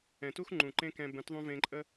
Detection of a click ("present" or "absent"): present